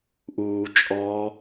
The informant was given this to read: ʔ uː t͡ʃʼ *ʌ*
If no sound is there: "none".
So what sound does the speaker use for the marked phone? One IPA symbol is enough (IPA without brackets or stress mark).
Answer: ɔ